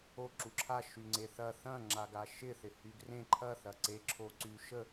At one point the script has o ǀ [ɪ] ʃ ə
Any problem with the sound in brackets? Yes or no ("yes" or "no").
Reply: yes